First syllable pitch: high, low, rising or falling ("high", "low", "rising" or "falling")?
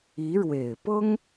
rising